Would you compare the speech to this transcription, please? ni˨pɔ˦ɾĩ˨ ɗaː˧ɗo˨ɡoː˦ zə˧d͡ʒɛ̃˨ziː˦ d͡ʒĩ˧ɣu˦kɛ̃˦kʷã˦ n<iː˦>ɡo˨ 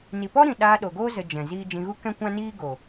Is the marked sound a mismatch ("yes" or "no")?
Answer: no